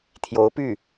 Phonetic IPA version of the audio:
t̪ʰ j o˧˥ ʊ̯ p y˥˩

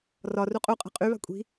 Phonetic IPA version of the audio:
r ɒ r u qʼ u qʼ ɛ̤ qʼ y β a̤ kʷʼ i̤

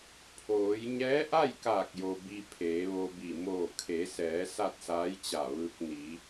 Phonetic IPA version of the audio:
pʰ oː˩˧ j ɲ ɛː˧˥ ʔ a˥˨ j k aː˧˩ k̚ j o˩ b i˧ pʰ eː˩˧ ʋ o˧ b i˧˩ m oː˧˩ kʰ e˩˧ s ɛː˩˧ s a˥˨ t̚ s aː˧˥ j t͡ɕ a˧˩ ʋ ɯː˧ k̚ n i˩˧

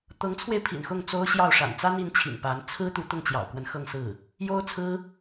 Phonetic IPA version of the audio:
t̪ ɤ˧˥ ŋ t͡sʰ w e˧ ɪ̯ pʰ ḭ˨˩ n x ʊ˥˩ ŋ t͡s o˥ ʊ̯ ɕ j ɑ˥˩ ʊ̯ ʂ a̰˨˩ n t͡s a˥ n i˧˥ n t͡ɕʰ ḭ˨˩ ŋ p a˧˥ n t͡sʰ ɹ̩˥ t̪ u˧˥ t̪ ʊ˥˩ ŋ t͡ɕ j ɑ̰˨˩ ʊ̯ k w ə˧˥ n x ɤ˥˧ ŋ s ɹ̩˥˩ | j o˥ ʊ̯ t͡sʰ ɹ̩˥

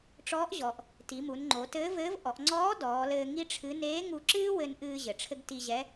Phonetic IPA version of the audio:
ʈ͡ʂ ɔː˧˥ ʔ ʑ ɔ˩ ʔ | t i˩˧ m u˩˧ n ŋ͡ǃ o˩˧ t ɘː˧˥ v ɘː˧˥ v ʔ ɔ˩˧ ʔ ŋ͡ǀ ɔː˧˥ d ɔː˩˧ l ɘː˧ ŋ i˥ ʈ͡ʂʰ ɨ˧˥ n eː˧˥ ŋ u˧ ǁ ɨː˥ w ɘ˧ n ʔ ɨː˧ ʑ ɘ˩ ʈ͡ʂʰ ɘ˥ ɡ t i˧ ʑ ɛ˧˥

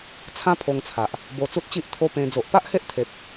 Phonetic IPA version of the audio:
t͡sʰ ã˦ pʰ o˧ ŋ t͡sʰ a˨ ʔ | b o˧ t͡s u˦ t̚ t͡ɕ i˦ ʔ t̪ʰ o˦ p ẽ˧ d͡z o˨ ʔ p a˦ ʔ h e˦ ʔ t̪ʰ e˨ p̚

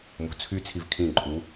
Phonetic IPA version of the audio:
m ṳ t͡sʰ y t͡sʰ i v kʰ ĩ ǃʼ u

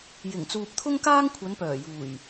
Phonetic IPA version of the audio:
j ɪ˨˩ ŋ t͡s uː˨ p̚ t̪ʰ ʊ˥ ŋ k aː˥ ŋ kʷʰ ɐ˨˧ n p œː˨˩ j uː˨˩ j

